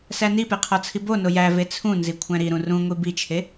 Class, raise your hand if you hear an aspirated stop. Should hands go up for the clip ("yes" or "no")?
yes